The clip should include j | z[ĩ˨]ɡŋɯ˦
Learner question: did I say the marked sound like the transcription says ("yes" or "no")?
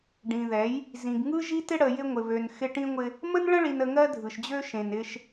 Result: yes